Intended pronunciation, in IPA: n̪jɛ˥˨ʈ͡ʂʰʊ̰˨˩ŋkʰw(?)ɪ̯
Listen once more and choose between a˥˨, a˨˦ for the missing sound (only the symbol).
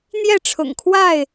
a˥˨